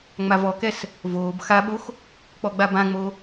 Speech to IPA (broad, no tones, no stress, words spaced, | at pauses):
ŋ͡mavɔkɛs | voːb xaɓox | k͡pɔɡ͡babãŋ͡mo